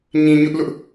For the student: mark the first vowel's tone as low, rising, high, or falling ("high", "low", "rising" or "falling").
low